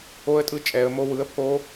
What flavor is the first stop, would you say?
ejective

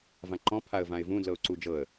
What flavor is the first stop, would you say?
click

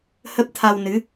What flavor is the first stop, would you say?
plain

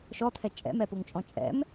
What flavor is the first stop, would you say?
aspirated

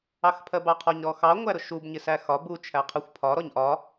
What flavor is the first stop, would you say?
aspirated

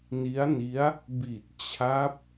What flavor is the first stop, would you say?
plain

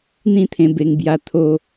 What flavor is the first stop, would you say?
aspirated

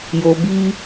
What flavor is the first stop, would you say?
plain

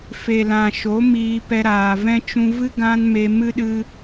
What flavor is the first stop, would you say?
plain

